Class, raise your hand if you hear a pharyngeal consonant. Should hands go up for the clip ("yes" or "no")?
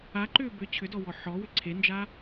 yes